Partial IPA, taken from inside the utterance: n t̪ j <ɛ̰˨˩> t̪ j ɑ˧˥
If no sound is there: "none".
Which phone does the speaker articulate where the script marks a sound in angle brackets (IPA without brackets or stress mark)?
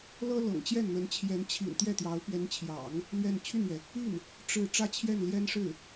ɛ˥˩